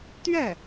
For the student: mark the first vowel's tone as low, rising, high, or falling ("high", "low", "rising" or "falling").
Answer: falling